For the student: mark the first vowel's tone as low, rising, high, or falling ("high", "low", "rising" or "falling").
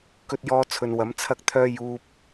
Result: high